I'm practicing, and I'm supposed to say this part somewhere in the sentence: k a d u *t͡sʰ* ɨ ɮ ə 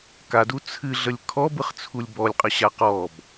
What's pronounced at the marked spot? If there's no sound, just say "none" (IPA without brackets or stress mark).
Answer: t͡sʰ